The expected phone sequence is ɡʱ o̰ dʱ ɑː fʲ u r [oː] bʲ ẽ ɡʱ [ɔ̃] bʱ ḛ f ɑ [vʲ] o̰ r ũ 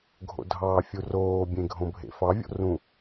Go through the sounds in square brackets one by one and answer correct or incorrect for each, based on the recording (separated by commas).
correct, incorrect, correct